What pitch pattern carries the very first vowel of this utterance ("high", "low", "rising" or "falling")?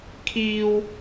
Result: high